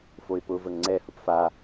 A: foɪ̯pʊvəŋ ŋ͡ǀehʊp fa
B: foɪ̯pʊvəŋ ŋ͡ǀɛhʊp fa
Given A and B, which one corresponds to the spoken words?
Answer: B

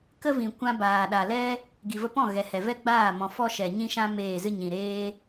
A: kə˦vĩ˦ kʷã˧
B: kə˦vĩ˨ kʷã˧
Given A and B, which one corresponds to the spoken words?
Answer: B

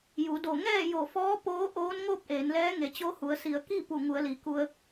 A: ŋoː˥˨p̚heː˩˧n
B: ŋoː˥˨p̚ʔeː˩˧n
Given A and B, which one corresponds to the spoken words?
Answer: B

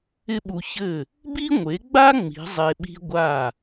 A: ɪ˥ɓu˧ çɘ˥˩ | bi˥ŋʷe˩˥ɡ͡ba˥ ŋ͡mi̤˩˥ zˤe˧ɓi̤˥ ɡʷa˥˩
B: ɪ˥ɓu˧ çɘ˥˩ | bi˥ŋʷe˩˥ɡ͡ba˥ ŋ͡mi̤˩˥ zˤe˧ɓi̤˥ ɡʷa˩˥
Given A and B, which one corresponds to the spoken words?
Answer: A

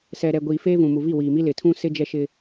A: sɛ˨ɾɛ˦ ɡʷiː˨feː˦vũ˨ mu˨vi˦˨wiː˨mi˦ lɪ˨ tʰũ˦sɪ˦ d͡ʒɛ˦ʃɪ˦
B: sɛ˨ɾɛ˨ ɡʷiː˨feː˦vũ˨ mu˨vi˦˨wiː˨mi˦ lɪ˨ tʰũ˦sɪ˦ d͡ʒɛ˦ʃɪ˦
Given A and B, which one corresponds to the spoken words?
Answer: B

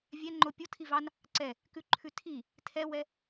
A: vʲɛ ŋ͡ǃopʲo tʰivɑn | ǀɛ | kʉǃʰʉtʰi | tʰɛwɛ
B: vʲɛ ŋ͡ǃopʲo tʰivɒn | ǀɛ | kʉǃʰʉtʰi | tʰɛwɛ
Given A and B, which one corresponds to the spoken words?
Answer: A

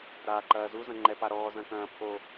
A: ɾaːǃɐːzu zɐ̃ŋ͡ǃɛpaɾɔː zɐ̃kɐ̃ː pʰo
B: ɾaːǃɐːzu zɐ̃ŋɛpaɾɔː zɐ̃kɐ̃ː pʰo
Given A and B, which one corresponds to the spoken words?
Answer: A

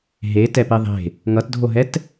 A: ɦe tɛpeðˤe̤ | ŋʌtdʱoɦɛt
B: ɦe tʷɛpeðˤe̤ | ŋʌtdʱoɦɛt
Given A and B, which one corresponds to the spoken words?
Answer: A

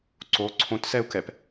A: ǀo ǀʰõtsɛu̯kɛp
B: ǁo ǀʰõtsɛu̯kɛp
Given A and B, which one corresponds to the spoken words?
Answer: A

